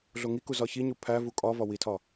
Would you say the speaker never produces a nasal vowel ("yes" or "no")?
yes